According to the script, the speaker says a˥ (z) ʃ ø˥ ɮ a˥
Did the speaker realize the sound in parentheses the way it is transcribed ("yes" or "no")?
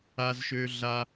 yes